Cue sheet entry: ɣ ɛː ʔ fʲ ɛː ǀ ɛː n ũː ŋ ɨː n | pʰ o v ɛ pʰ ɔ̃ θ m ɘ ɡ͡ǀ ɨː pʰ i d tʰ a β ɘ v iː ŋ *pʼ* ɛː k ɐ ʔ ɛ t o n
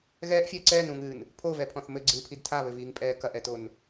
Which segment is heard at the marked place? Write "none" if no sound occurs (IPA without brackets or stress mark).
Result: pʼ